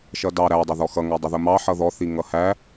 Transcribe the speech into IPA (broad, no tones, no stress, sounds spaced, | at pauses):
ʃ ʌ d ɑ ɾ æ dˤ ɑ ð ɔ x ʌ ŋ æ dˤ ʊ ð ʊ m ɑ ħ ʌ ð ɔ θ i ŋ ʌ h æ